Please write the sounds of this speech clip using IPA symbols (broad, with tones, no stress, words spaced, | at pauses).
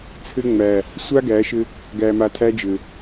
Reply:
t͡sʰɘ˦ŋ͡mæ˨ | sʷa˦ ɡæ˨˦ʃɘ˦ | ɡæ˨ma˨tʰæ˦d͡ʒɘ˨